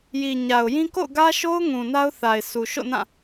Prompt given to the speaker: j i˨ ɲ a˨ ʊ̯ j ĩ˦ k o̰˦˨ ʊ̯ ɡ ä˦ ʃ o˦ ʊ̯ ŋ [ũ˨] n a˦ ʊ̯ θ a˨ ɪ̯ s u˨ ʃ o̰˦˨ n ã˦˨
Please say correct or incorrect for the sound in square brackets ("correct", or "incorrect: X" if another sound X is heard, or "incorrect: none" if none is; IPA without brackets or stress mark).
correct